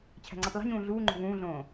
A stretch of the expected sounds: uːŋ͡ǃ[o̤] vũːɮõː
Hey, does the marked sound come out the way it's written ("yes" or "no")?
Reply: yes